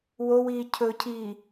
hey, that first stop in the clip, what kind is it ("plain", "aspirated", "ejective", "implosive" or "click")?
aspirated